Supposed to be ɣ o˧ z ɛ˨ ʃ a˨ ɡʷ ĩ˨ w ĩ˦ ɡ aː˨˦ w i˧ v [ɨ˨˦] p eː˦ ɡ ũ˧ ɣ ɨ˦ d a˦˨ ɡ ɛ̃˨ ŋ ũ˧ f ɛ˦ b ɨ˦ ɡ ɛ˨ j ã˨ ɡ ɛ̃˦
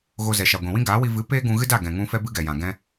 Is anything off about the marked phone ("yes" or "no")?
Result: no